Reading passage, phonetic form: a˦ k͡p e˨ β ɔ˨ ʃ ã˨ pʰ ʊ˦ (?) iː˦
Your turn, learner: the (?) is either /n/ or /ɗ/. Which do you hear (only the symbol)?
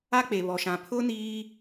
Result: n